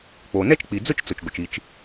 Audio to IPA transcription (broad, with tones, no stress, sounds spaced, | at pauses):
k͡p o˩ n ɛ˥ t͡ʃ k͡p i˩ d͡z ʊ˥ t͡ʃ t͡s ʊ˩ t͡ʃ ɡʷ ə˩ t͡ʃ i˩ t͡ʃ